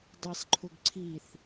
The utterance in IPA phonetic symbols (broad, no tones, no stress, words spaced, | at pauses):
dˤisˤǃʰʊɡ ǀʰiθ